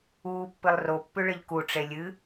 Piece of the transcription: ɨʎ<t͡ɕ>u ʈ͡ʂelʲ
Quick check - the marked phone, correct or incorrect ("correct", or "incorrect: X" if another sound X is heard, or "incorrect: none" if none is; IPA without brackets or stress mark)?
incorrect: k